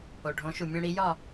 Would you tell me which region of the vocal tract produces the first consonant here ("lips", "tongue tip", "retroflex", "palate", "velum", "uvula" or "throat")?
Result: retroflex